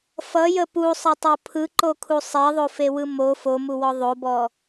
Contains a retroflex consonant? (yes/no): no